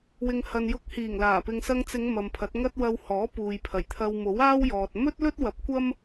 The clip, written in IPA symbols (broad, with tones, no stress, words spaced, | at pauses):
wɪ˨ŋhɐ˨njʊ˧k̚hiː˨˩ŋ laː˨˩pɪ˧ŋ sɐ˧ŋt͡sɪ˨˧ŋ mɐ˨mpʰɐ˨˥t̚ŋɐ˥t̚ wɐ˧w hɔː˨˥ puː˨jpʰɐ˨˩jt̪ʰɐ˧w mo˨˥waː˥wjɔː˨t̚ mɵ˥t̚lɵ˥t̚wɐ˨˥p̚kʷɐ˥m